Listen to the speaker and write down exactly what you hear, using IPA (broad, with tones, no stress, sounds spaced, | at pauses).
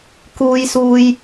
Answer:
k uː˧ j s uː˧ j